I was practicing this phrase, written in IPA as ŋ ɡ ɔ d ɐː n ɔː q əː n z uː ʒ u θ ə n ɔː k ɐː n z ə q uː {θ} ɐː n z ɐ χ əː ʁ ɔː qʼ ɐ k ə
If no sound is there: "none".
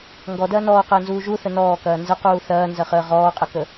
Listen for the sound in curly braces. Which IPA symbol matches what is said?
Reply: θ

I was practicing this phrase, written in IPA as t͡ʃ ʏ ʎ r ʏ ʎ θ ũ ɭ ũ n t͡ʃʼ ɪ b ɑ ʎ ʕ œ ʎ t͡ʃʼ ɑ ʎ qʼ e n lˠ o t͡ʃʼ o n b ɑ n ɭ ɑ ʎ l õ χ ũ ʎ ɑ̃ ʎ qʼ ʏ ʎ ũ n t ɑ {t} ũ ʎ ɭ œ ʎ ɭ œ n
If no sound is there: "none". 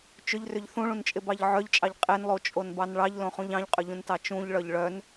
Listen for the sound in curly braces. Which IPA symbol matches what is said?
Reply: t͡ʃ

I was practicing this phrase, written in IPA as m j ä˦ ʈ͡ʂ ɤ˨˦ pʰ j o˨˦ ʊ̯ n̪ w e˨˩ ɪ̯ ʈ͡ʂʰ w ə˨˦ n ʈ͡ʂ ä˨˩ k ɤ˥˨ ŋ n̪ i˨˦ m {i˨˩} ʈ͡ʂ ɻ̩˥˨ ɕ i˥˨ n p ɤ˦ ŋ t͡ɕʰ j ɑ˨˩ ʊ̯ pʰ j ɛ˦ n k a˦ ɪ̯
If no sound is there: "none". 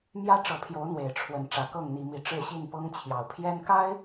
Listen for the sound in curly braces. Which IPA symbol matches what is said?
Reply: i˨˦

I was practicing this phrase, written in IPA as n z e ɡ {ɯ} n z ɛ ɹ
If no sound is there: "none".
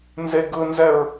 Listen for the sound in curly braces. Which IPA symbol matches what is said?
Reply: ɯ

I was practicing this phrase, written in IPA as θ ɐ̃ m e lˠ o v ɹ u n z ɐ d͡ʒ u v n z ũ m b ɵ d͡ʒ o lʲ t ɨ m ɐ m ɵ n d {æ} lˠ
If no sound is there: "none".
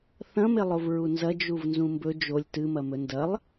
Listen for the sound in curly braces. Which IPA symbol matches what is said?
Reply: ɐ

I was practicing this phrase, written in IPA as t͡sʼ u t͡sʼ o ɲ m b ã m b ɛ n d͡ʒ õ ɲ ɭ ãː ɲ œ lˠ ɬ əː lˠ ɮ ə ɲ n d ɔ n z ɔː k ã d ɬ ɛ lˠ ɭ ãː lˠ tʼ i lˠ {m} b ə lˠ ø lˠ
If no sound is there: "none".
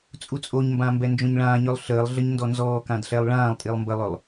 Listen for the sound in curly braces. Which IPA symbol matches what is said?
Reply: m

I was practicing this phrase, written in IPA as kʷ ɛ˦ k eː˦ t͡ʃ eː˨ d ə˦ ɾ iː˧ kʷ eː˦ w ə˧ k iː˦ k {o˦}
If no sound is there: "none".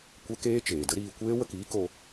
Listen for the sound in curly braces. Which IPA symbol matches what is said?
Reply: o˧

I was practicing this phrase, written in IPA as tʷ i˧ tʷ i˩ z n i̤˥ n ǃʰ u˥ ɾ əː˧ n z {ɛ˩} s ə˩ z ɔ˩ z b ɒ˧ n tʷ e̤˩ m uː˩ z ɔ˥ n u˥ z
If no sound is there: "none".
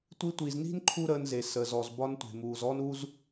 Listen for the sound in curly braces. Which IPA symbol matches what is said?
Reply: e˩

